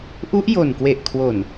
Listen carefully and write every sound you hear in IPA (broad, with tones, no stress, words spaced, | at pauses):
ʔu˦˥ʔjo˨˩nkwe˨˩ʔkʰwo˨˩n